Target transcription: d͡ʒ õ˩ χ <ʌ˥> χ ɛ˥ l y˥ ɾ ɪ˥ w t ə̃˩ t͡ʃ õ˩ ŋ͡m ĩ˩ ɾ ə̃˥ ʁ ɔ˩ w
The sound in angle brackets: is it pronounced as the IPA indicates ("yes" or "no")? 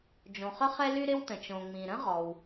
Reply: no